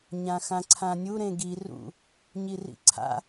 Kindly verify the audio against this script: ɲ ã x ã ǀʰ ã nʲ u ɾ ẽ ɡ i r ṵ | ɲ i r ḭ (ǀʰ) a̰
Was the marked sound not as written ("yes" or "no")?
no